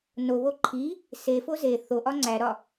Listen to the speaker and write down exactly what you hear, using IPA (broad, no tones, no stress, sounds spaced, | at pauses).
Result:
n o β o ǃʰ i | s e f o z e θ o ʔ ɒ ŋ͡ǀ æ ɾ ɒ